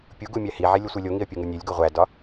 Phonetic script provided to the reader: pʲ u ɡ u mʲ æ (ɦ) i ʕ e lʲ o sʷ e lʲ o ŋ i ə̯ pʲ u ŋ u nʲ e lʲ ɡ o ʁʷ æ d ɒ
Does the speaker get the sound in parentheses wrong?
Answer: yes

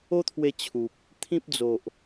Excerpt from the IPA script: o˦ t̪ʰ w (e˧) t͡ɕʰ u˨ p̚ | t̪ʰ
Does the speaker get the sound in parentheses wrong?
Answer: no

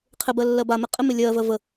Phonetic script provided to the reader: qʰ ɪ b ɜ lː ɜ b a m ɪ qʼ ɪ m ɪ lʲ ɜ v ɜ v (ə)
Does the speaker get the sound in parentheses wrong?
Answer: no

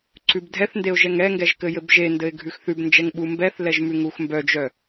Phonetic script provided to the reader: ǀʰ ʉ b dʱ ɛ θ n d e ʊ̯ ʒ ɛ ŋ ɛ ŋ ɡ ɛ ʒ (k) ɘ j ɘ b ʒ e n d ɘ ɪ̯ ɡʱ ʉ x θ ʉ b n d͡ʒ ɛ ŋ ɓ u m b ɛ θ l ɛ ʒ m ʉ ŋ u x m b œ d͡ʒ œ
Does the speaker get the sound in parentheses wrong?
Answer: no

